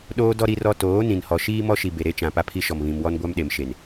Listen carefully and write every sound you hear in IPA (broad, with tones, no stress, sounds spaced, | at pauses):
ɗ oː˦ d ɔ˦ ɾ i˦ r ɔ˦ t oː˨˦ n ĩ˨ n h ɔ˨ ʃ iː˦ m ɔ˦ ʃ i˨ b e˨ ɾ e˦ t͡ʃ ã˨ p a˦ pʰ i˦ ʃ ɔ˨ m β ĩ˨ m w ɔ˦ n ɡʷ a˦ m ɗ e˨ m ʃ e˨ n